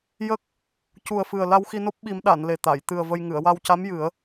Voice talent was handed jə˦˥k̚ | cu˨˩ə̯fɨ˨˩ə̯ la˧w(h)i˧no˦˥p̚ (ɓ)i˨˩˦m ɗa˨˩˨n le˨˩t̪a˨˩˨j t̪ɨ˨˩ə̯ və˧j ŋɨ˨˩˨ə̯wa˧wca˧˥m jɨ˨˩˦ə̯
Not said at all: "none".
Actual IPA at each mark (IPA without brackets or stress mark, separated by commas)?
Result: x, ɓ